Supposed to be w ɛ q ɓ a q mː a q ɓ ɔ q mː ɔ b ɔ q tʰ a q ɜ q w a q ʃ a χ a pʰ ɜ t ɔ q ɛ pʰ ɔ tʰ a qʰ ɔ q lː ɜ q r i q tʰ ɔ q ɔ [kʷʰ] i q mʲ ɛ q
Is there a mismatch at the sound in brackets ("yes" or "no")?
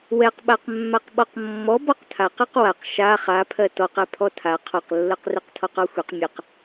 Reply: yes